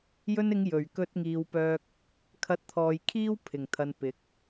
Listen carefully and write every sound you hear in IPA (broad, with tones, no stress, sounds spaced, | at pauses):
j ɵ˧ n ɪ˨˧ ŋ j ɵ˨˩ ɥ k ɵ˧ t̚ ŋ iː˨ w p œː˧ k̚ | kʰ ɐ˧ t̚ t̪ʰ ɔː˨ j kʰ iː˥ w pʰ ɪ˨˩ ŋ t̪ʰ ɐ˨ n p ɪ˨˥ k̚